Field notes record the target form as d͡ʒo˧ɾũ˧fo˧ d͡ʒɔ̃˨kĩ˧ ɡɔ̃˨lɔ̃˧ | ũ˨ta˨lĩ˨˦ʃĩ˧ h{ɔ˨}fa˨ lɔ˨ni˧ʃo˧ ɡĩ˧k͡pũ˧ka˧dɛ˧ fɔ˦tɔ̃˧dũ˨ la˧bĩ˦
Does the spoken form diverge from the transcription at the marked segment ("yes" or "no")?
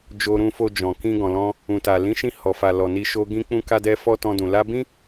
no